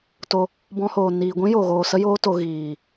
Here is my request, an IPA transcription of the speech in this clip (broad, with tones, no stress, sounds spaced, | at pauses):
t o˧ | b ɔ̃˦ h oː˧ n iː˧ ɡʷ ĩ˦ j o˨ ɣ oː˨ s ə˦ j oː˦ t o˧ ɣ iː˨